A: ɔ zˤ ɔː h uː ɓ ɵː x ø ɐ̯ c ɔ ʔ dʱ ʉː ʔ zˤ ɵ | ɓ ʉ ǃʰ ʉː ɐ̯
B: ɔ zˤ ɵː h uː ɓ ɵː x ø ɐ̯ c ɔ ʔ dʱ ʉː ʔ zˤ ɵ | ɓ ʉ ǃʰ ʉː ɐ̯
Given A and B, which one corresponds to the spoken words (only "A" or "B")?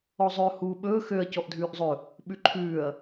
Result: B